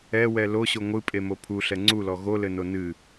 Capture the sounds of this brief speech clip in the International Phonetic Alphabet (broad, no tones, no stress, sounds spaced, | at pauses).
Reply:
ɛ w ɛ l o ɕ o ŋʷ ɨ pʼ e m o pʰ u ɬ ɛ ŋ͡ǀ u l ɔ ɣ o l ɘ n o n ɨ